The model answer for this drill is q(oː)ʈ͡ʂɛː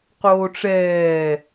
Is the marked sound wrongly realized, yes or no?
no